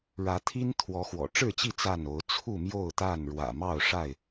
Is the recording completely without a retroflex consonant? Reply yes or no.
no